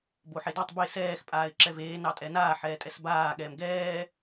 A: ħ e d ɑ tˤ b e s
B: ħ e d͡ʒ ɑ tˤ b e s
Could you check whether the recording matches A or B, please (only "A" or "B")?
A